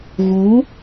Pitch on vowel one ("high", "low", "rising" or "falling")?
rising